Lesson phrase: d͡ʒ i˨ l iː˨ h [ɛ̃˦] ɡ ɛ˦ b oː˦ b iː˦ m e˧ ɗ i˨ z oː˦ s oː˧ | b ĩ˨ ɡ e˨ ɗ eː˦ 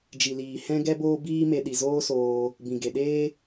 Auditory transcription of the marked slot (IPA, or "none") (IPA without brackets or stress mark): ɛ̃˦